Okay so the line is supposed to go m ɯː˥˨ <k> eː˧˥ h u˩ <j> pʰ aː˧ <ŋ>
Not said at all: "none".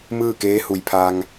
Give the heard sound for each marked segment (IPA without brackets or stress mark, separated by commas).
k, j, ŋ